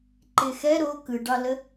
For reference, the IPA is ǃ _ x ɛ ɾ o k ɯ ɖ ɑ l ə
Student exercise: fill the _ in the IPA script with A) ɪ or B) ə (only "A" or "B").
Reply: A